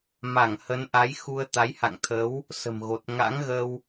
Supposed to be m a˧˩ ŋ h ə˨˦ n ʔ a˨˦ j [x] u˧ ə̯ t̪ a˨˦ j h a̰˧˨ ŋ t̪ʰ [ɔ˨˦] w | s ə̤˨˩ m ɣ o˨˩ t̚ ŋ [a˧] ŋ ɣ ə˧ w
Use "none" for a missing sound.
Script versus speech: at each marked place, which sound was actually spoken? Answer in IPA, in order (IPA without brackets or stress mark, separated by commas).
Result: x, ə˨˦, a̰˧˥